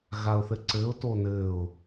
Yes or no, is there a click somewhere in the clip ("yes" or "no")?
yes